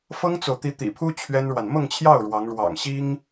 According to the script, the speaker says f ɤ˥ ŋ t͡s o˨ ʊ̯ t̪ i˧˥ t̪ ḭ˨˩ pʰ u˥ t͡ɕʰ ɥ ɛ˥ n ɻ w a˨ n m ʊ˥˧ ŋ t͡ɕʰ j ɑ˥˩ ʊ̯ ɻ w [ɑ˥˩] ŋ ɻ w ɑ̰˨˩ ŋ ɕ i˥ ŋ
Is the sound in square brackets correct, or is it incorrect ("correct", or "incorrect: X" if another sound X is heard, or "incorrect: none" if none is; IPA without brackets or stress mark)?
incorrect: ɑ˧˥